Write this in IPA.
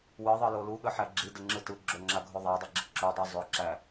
w ɯ ðˤ ɯ l o l u ɠ ə ħ æ ɡ͡ǁ i d ə ŋ͡ǁ ɯ t ɯ ɡ͡ǁ o ŋ͡ǁ a ɡʱ o ðˤ a dˤ e ɡ͡ǁ ə ǁ ʏ dˤ u zˤ ʏ ǁ æ

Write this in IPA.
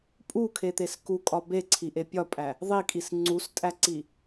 pʼ u kʰ e t̪ e s k u kʼ ɒ b e ǀʰ i ʔ e pʲ ɒ pʼ æ | ðˤ i kʼ i s ŋ͡ǀ u s tʼ æ ǀ i

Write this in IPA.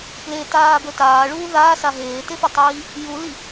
p l e t aː b ɵ t aː ɭ uː ð aː s a ɦ eː t e f ɵ tˤ iː | j u l i

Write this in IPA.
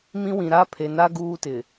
m ĩ˦ w ĩ˨ ɾ a˦ pʰ e˨ n a˦ ɡ uː˦ t ɪ˨

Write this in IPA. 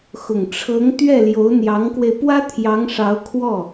x ʊ˨˩ ŋ ʈ͡ʂʰ ɤ˧˥ ŋ t̪ ɥ ɛ˥˩ l j o˧˥ ʊ̯ n̪ j ɑ˧˥ ŋ k w e˧ ɪ̯ p w ä˥ t̪ʰ j ɑ˧˥ ŋ ʂ ɑ˧˥ ʊ̯ kʰ w ɔ˥˩

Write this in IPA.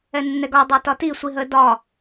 ɛ nː ɛ ɡ ɒ dˤ ə˞ t ɒ t i sʷ i ɦ ə d ɒ

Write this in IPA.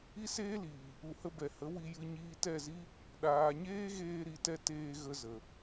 i˦ s eː˦ l iː˨ | u˨ h ə˧ b ɛ˨ h ə˨˦ w i˧ j ɨ˧ ɲ iː˧ t ɛ˦˨ z i˦ | ɗ aː˨ ɲ eː˦ ɣ eː˧ ɾ i˨ t ɛ˧ t eː˧ ɣ ə˧ z ə˨

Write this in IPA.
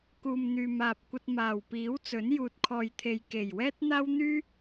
k uː˨ m n̪ yː˨ m aː˨ p̚ kʷ ɐ˧ t̚ m aː˨˩ w p iː˨˥ w t͡s ɵ˨˥ n j uː˨ t̚ kʰ ɔː˨ j t̪ʰ e˨ j k e˨˩ j w ɛː˥ t̚ n̪ aː˥ w n̪ yː˥

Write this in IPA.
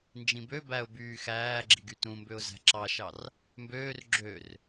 n d͡ʒ ĩ b ø b æ ʊ̯ b yː x æː ɡ͡ǁ i ɡ y t ũ m b ø ʊ̯ z æ̤ ǁ ɑ ʃ ɑ r | m b øː r ɡ͡ǁ ø r

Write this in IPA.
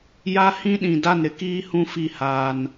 j a˦ h ĩ˦ ɗ ĩ˨ d a˦˨ n ɾ ɪ˦ k iː˦ h ũ˦ f i˦˨ h aː˦ n

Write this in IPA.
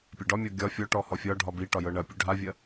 pʲ ɐ ɖ ɒ mʲ ɔ ɡʲ ɒ fʲ ɔ ʈ ɔ h ɔ fʲ ɒ ɖʱ ɒ b i ʈ ɒ j ɤ ɳ ɐ pʲ ɵ ɖʱ a vʲ ɐ

